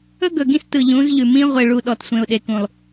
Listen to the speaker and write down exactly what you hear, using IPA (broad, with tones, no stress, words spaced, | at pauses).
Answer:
ɵ˦ɡɵ˨ɡĩ˦stɯ˨ ʎũ˨˦zʎʉ˨ mĩ˦ʁʷe˨ɭu˨ ɗɔ˨tsʷẽ˨ʊ̯ɗe˨kũ˨lˠ